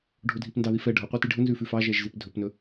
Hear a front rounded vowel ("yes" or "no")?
no